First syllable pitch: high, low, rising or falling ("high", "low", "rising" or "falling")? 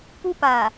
high